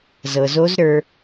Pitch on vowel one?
low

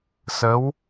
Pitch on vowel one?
rising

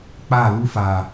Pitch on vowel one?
falling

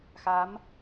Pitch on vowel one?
rising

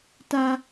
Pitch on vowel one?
high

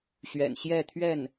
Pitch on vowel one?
low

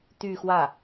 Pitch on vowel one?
falling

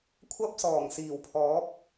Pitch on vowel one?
high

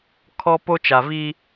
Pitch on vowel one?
high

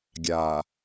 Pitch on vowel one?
low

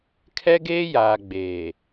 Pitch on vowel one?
high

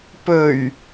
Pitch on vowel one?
low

